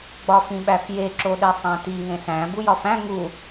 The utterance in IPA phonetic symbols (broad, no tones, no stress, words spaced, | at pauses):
ɡ͡bɒfĩɓæfje ǁoɗesˤæ̃ti ŋẽsæ̃ bujɒfæ̃ ŋu